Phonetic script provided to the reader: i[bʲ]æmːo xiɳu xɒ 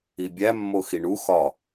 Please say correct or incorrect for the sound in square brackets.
correct